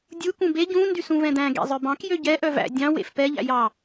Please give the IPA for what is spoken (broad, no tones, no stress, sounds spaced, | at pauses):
dʲ u k ũ b e ɟ ũ n d y s ũ v ɛ̃ d̪ æ̃ ɡ ḛ zˤ œ b ɑ̃ k j ø ɟ ɛ ʔ œ v æ̰ dʲ ɑ̃ w ḛ f p ɛ ʎ æ̰ j ɑ